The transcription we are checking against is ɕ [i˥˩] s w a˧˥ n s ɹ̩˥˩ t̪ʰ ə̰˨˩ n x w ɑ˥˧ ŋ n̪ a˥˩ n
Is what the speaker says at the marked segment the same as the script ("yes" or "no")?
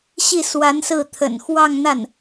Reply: yes